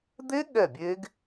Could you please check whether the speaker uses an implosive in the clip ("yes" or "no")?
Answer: yes